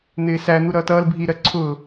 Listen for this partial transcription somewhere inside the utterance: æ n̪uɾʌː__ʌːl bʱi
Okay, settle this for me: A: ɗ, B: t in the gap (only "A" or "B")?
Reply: B